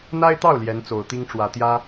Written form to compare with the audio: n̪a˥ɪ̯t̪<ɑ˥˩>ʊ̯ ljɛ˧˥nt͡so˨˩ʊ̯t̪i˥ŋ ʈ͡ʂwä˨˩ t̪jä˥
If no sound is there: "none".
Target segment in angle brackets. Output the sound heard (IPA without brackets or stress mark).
ɑ˥˩